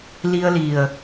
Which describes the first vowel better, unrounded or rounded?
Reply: unrounded